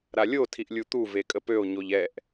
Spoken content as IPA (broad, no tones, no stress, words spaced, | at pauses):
ɾalʲo tʰiʔlʲut̪u vekʼəpøo̯ ɲoʎɛʔ